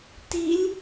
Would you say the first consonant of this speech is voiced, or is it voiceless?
voiceless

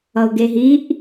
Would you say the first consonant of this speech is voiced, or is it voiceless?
voiced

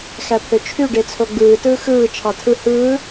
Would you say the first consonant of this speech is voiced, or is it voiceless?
voiceless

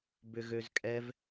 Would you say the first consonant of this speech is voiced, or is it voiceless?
voiced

